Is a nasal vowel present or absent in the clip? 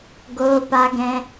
present